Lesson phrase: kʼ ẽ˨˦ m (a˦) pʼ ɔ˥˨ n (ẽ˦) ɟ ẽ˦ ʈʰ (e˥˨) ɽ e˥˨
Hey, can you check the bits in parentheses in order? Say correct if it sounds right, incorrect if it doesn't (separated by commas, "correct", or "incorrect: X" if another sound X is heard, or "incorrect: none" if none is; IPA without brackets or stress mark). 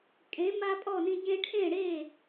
correct, incorrect: ĩ˦, incorrect: ẽ˥˨